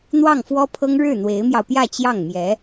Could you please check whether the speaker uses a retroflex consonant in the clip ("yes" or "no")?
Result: yes